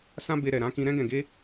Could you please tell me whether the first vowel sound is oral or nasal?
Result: nasal